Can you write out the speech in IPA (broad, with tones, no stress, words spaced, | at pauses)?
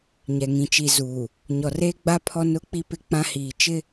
ɲɛ˨ ŋĩ˨t͡ʃi˨zuː˨ | ɲɔ˨reː˦ɡ͡ba˦ pʰɔ˦nʊ˦k͡pi˦ pɪ˦k͡pã˦ hiː˨t͡ʃɪ˦